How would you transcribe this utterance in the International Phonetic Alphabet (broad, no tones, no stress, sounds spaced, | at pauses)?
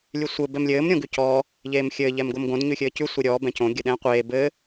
lʲ ʉ sʷ ɘ b ɛ m lʲ ɘː m ɾʲ õ ɡ ʉ c ɔː | ʎ eː m xʲ ɘː ʎ ɛ m ɡ o m ɡ õ d ɲ ʉ xʲ ɘː c ʉ sʷ e ɾʲ ɔː b ɛ̃ c õ ɡʲ ɘ ɗ ɛ̃ː qʷ eː b ɘː